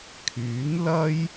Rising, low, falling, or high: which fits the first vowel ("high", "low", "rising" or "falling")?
rising